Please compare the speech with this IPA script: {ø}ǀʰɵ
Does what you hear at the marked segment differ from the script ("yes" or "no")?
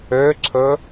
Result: no